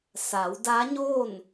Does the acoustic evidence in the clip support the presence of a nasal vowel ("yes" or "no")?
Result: no